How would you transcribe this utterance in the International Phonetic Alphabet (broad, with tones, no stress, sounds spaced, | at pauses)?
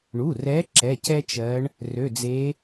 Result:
ɳ u˩˧˩ r ɛ˨˦ ǁ ɛ˩˧˩ c ɛ˦ t͡ʃ ɜ˨˦ ɳ | r ø˩˧˩ d͡z e˨˦